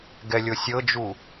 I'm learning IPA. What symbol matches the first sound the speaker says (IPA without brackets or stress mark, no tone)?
ɡ